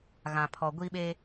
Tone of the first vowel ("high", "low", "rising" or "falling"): low